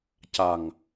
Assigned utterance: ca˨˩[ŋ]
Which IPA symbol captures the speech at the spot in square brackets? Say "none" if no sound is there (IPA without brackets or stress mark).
ŋ